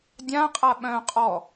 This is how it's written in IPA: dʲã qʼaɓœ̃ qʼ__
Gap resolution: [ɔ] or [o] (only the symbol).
ɔ